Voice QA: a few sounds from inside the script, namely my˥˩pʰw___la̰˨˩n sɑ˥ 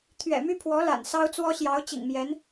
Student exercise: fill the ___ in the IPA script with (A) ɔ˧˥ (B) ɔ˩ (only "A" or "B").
A